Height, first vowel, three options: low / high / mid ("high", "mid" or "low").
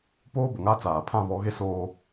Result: mid